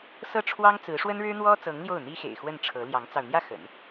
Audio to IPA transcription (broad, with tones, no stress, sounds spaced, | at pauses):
s ɤ˥˩ ʈ͡ʂʰ w ɑ˥ ŋ t͡s ɹ̩˧˥ ʂ w ə˥ n ɻ ɻ̩˥ n̪ w ɔ˥ t͡s ɤ˧˥ ŋ l j o˥˩ ʊ̯ n̪ i˥ x ḛ˨˩ ɪ̯ x w ə˥˩ n ʈ͡ʂʰ ɤ˧˥ l j ɑ˧˥ ŋ t͡s ɑ˧ ʊ̯ n̪ j ä˥˩ x ə̰˨˩˦ n